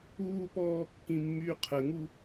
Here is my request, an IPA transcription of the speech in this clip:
uː p ɔː kː ĩ mː yː qʰ ə ŋ u

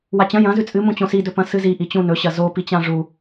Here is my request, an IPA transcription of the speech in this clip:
w a t͡ɕ ɐ̃ j ɐ̃ z ʉ t͡sʼ ɨ m ũ t͡ɕ õ s i d ɵ p ɐ̃ s ɨ z i ʔ i t͡ɕ ũ n ɵ ɕ ɐ z o p i t͡ɕ ã ʐ u

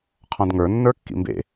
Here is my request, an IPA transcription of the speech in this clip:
qʰ ɔ̃ d ŋ ə˞ nː ə˞ kː ḭ m b ḛ

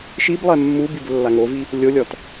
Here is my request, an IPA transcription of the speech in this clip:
ʃ i b lˠ ɛ mː u b i b lː a ŋ o v i | lʲ o lʲ ɔ t

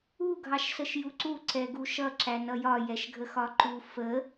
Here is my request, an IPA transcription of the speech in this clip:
u ɡʱ ɑ ʃ s ə ʃ j u ǀ u ǀ ɛ ɡ u ʃ ʌ ǁ æ n ʌ j ɒ j ɛ ʃ ɡʱ ə x ɒ ǃ u f ə

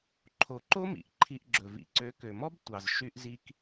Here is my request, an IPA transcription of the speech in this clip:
ǃʰ o˨ ǃ o˦ m ḭ˨ ʔ ǃʰ i˧ ʔ ɡ͡ǁ ɵ˨ v ḭ˨ ǀ ø˨˦ k ø˨ m ɔ˦ b tʷ ɑ˨ z ʃ y˦ ʔ z i˦ k

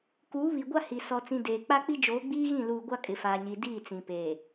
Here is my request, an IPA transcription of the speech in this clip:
k uː˨˦ β i˨ ɡʷ a˦ h i˨ s ɔ˨ t͡s ĩ˨ d eː˨ k͡p a˦ k͡p i˦ d͡ʒ oː˨˦ ɡ͡b iː˦ ɣ ĩ˦˨ l uː˨ ɡʷ a˦ kʼ ɪ˨ f aː˨ ɲ iː˨ d iː˦˨ t͡s ĩ˨ p eː˨

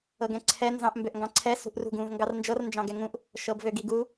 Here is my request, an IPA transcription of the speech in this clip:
ɤ ɡ ɛ̃ ǀʰ ɛ n z ɑ̃ ʔ m b ø ʔ ŋ ɡ ɑ̃ ǀʰ ɛ s ṳ ʔ r ṳ ɡ ũ v ŋ ɡ ɑ r n d͡ʒ ɤ r n d͡ʒ ɑ̃ ɡ ɛ ŋ ũ ʔ | ʃ ɤ b v ø ɡ i ɡ u

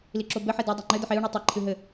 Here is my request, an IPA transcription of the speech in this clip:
l i ǁ o b ɘ ħ e d ɛ dˤ ɛ ŋ͡ǃ ɘ d ɘ ħ e u̯ ɳ i tˤ ɛ ǃʰ ɨ ɦ ɘ

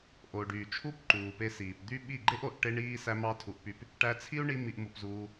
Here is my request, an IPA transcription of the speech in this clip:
ʔ o˨ ɖ yː˨ t͡ʃʰ u˦ p ǃ uː˨ p e˧ s iː˨ p d̪ y˦ ɓ i˦˨ ɡ͡ǃ e˦ ʔ o˨ ʔ ʈ e˦ ɳ iː˦ s æ˦ m ɑ˦ tʰ u˧ ʔ p y˧ p | ʈ æ˧ t͡sʰ i˦ u̯ ɳ i˧ m i˧ ʔ m u˧ p z uː˧

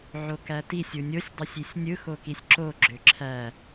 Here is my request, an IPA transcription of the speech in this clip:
ʕ o k æ t i sʲ u nʲ o sʲ dˤ o sʲ i sʲ nʲ ɯ x o k i sʲ ǁ o ɡ͡ǁ ø ǁʰ æ

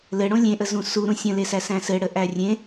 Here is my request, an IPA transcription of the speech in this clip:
l ɘ ɽ õ lʲ ẽ ʔ ə z ũ s u ɾ ũ sʲ ə̃ l e s æ s æ̃ s ɘ ɽ ə ʔ æ rʲ ẽ

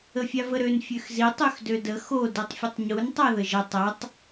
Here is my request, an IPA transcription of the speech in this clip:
ə fʲ a v ə ɾ ø n fʲ ø x z i tˤ ø x d ø d ə x o d i tˤ fʲ ə tˤ ɲ u n tˤ a ð ə ʒ ɐ tˤ ɐ tˤ

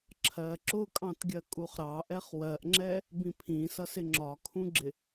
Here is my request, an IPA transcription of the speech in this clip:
ǁʰ ɜ ǁ ʊ kʼ ɑ̃ t ɡʲ ɜ kʼ u χ ɾ ɑ ʔ ɛ χ w ɜ ʔ ŋ͡ǁ ɛ | b ĩ pʰ ĩ s ʌ s ɪ ŋ͡ǁ ɒ kʰ ũ ɡ͡ǁ ɪ

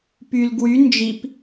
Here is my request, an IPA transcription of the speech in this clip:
p y l ɡ w y n d͡ʒ i p

